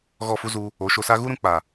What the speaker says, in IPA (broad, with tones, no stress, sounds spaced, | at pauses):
ɣ ɔ˦˨ f u˦ z u˧ | o˨˦ ʃ o˧ s a˦ ɣ u˦ ɾ ũ˧ k͡p a˨